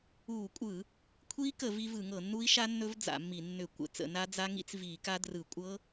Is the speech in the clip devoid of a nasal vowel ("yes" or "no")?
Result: yes